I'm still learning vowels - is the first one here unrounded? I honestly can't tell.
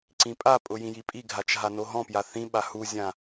yes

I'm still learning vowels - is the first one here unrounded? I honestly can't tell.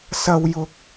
yes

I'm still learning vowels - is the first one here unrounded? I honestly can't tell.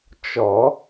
no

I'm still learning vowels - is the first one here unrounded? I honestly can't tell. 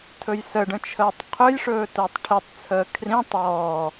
no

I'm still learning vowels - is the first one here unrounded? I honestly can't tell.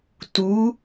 no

